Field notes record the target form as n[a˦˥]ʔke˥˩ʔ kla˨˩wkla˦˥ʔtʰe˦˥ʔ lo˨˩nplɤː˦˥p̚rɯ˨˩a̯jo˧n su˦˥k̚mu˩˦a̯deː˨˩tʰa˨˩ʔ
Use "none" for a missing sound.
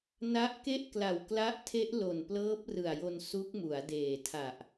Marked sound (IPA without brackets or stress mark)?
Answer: a˦˥